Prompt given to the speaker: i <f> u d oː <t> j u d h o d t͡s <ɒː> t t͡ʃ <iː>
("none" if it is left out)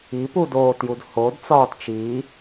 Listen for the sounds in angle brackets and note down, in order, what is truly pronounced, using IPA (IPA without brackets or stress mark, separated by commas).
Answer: p, t, ɒː, iː